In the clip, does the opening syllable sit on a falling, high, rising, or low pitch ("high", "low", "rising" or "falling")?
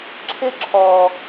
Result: high